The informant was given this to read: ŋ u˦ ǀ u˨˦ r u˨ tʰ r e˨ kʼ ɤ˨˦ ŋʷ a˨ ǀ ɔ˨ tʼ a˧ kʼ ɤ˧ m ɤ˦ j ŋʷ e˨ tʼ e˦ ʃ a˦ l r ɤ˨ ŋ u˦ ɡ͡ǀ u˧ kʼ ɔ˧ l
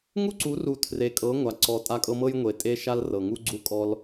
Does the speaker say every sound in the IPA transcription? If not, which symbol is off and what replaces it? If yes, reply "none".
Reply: none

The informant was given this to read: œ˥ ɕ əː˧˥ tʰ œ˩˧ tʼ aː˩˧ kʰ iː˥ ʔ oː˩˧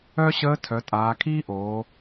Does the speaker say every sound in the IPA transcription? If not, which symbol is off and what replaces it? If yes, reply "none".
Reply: none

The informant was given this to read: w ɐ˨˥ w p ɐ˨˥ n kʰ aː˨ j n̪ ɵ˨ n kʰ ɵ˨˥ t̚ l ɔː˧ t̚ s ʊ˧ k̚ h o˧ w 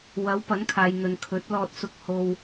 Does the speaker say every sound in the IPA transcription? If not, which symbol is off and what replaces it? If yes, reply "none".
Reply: none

